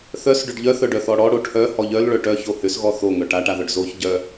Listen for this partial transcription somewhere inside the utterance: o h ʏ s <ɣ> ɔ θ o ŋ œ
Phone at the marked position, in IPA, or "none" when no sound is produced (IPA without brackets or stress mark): ɣ